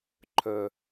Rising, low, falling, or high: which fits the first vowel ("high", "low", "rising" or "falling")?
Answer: low